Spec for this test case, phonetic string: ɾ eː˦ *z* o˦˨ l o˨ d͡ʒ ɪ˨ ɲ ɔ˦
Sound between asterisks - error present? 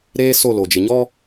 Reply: yes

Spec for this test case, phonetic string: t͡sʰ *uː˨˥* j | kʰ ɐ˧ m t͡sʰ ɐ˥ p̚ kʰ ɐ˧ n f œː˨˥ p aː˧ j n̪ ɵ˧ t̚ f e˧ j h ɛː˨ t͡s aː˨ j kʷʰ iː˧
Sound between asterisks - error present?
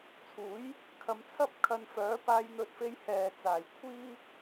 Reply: no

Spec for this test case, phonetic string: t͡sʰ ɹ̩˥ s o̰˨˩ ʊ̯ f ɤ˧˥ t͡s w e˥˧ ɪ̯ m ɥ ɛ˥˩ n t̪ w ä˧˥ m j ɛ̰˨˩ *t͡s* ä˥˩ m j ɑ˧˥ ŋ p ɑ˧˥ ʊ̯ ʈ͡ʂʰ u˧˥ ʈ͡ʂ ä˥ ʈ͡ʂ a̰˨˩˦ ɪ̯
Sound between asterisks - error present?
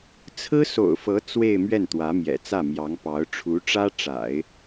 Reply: no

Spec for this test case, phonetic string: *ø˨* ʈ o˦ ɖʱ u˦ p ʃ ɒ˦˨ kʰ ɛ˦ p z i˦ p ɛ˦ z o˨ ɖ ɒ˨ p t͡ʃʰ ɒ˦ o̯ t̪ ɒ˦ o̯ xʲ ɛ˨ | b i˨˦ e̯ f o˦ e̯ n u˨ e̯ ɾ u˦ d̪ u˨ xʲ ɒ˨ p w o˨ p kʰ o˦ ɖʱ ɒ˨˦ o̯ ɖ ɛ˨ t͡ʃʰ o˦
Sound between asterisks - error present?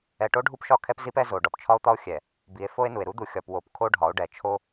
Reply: yes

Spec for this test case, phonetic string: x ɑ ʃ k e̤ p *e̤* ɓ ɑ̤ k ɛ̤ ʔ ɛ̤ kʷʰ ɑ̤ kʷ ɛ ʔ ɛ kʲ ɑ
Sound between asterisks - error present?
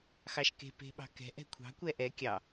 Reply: no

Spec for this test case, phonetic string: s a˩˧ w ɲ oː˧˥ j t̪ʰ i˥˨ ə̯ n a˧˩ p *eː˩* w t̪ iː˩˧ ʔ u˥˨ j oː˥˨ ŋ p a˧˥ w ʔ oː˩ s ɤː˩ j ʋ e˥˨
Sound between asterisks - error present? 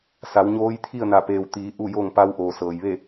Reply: no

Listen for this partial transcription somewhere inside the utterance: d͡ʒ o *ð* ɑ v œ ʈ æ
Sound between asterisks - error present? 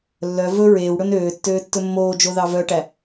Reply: no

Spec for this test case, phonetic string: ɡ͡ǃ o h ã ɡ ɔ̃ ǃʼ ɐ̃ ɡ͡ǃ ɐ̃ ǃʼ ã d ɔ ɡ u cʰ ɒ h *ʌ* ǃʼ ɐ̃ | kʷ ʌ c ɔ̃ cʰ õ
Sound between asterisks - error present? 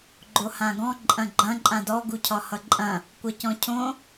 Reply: no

